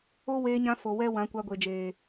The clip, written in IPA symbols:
o˦weː˧ɲã˧ fo˨ wɛ˦ wã˨˦kʷa˧ɡʷe˨d͡ʒeː˨

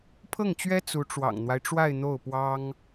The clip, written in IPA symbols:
pʰɤ˥˩ŋt͡ɕɥɛ˥ t͡su˧˥ʈ͡ʂwɑ̰˨˩ŋn̪wa˦ɪ̯ʈ͡ʂwa˥˧ɪ̯ n̪o˥˩ʊ̯pwɑ˥ŋ

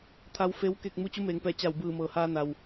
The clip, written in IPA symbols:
t̪ʰa˧wfe˧˥w ke˥˨k̚ mu˧˥t͡ɕu˧˥meː˩˧ŋpɛː˧˩ t͡ɕa˧˩wbɯː˧˩mɤː˩haː˧ na˩w

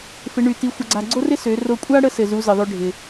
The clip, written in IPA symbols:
fɪ˧˥ɳy˧ti˧˥ xʷə˧ɡ͡ǀa˧ ɡ͡ǀo˥rɪ˥ sø˩˧ro˧kʷʼa˥ ɽə˥sɘ˩zu˩˧ zɘ˩ðˤø˧ ɖʱɪ˩

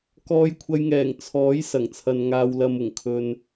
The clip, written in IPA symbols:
kɔː˧jkʷʰɐ˧jŋɛː˨˩ŋ t͡sʰɔː˨˥j sɐ˨˩ŋt͡sʰɐ˨n ŋaː˨wlɐ˨mʊ˨˩ŋ kʰɵ˨n

